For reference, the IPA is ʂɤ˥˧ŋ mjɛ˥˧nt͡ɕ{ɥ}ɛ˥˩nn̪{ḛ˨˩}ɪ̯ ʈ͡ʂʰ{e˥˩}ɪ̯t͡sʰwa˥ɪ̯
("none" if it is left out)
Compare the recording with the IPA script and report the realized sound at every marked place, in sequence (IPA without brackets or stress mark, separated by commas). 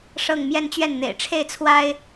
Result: ɥ, ḛ˨˩, e˥˩